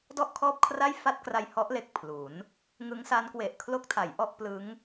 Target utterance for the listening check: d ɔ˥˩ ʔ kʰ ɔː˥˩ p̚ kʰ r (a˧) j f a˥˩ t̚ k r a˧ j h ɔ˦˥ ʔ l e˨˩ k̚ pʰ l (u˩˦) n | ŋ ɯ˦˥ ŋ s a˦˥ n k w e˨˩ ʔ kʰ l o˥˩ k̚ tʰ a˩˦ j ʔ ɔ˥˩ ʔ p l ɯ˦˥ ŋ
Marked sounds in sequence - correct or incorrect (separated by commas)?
incorrect, correct